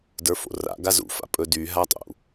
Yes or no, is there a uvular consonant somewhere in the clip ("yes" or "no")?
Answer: no